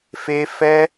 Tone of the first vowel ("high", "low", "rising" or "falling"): high